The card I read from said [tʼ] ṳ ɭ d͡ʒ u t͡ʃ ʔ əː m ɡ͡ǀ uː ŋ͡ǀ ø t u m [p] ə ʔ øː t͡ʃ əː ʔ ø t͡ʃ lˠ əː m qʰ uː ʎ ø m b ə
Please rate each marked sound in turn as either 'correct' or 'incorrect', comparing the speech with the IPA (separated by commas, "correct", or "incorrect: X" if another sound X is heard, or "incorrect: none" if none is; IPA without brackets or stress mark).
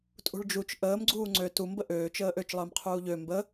correct, incorrect: b